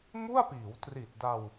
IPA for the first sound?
m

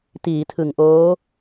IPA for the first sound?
t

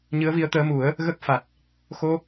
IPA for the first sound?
ɲ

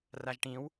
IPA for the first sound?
r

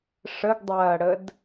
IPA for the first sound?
ʂ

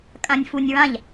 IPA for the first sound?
kʼ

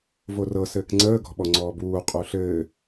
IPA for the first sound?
v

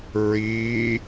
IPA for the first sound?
ɹ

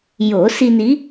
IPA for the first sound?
j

